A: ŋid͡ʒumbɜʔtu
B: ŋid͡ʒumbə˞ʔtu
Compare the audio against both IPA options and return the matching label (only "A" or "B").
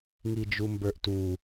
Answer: B